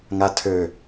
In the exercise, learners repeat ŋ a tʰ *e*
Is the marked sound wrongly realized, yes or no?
yes